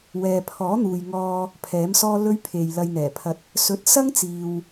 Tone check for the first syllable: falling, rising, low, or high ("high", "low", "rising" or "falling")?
low